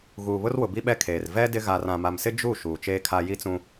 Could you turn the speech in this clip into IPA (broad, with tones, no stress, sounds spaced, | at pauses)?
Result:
ɣ uː˨ β ʊ˦ r w ʊ˨ b i˦ ɓ ɛ˦ kʰ eː˨ r v ɛ˦ d ɪ˦ ɣ a˨ r ã˨ m a˨ m s ɪ˦ d͡ʒ u˦˨ ʃ uː˨ t͡ʃ eː˦ kʰ a˦ j i˦ t͡s ũ˦